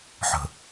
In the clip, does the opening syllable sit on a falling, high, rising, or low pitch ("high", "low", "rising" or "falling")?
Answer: low